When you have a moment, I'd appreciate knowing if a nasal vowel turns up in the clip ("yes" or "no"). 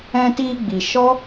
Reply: yes